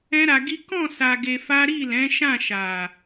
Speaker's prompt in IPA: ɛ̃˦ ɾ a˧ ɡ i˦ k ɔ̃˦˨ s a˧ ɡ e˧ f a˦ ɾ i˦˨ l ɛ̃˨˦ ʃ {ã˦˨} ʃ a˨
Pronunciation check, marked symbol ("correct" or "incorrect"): correct